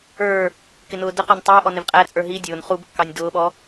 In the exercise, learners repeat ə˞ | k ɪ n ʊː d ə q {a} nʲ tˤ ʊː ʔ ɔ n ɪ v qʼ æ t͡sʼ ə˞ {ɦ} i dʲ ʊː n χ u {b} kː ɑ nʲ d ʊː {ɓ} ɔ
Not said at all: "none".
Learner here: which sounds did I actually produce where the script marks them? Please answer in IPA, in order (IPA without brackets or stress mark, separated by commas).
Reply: ɑ, ɦ, b, ɓ